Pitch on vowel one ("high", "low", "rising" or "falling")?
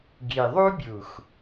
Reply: low